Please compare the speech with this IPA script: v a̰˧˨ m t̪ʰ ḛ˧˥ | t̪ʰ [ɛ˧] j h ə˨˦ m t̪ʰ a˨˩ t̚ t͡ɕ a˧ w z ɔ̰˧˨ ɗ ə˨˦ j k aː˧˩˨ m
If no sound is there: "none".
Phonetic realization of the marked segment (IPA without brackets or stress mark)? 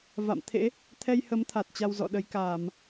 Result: ɛ˧